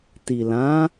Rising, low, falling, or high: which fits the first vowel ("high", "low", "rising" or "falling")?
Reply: low